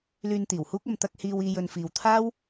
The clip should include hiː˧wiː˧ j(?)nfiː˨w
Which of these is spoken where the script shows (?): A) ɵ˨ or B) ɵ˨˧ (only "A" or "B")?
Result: A